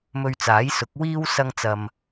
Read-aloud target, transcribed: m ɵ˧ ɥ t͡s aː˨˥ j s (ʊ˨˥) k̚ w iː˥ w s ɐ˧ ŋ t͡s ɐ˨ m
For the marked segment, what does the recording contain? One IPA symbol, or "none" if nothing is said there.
ʊ˨˥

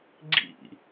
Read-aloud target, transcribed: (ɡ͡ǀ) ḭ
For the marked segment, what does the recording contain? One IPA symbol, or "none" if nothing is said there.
ɡ͡ǀ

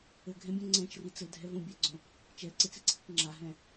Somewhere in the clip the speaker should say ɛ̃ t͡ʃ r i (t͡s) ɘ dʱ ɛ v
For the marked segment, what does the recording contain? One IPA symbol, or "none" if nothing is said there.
t͡s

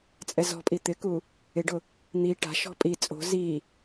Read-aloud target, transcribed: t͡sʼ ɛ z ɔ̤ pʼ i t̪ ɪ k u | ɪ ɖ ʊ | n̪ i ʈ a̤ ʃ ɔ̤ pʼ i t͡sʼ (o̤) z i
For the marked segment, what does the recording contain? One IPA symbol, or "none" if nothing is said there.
o̤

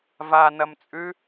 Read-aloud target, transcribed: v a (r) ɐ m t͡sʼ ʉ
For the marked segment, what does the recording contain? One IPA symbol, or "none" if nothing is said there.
n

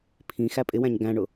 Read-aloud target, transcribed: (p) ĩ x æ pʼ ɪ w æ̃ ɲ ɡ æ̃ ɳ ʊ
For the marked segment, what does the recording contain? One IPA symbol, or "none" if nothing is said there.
pʰ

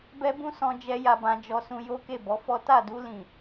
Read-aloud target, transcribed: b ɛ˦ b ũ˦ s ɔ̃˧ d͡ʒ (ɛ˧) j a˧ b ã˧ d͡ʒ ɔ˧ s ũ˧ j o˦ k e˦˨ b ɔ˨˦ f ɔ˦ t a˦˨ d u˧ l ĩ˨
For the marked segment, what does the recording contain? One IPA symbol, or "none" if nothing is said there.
ɛ˦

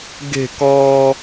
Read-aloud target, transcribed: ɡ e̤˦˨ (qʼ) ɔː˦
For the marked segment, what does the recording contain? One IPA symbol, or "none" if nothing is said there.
k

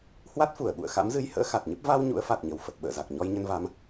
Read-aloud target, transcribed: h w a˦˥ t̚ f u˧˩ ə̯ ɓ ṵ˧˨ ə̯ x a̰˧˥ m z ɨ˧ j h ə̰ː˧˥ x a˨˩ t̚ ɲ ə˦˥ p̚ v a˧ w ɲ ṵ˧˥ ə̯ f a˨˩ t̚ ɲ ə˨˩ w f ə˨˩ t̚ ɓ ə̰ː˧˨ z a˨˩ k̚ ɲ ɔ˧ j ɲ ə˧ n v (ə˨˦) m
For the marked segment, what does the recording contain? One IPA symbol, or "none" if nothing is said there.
a˨˦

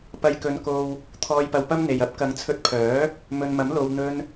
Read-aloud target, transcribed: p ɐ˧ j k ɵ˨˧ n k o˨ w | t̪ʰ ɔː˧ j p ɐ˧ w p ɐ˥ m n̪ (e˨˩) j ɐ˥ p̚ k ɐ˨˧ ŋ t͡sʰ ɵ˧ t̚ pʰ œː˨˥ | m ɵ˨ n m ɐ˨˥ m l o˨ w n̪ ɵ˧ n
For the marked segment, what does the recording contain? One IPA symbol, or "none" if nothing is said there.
e˨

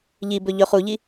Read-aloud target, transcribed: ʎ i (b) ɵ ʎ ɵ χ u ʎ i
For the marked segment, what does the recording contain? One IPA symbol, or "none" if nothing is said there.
b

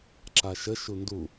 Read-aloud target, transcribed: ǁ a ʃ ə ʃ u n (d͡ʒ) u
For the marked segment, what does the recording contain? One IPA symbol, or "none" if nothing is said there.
d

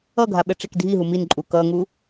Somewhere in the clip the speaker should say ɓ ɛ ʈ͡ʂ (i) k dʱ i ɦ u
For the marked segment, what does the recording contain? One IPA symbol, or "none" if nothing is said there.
e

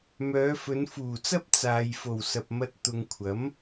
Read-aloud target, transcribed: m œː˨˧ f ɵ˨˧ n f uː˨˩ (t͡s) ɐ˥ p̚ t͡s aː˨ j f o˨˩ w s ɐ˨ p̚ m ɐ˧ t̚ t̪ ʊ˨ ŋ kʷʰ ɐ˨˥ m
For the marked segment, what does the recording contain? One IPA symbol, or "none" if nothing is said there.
t͡s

